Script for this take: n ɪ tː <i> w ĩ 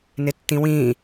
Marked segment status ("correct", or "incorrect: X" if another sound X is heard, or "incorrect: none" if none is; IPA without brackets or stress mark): incorrect: ĩ